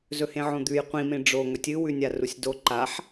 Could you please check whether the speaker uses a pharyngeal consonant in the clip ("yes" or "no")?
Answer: yes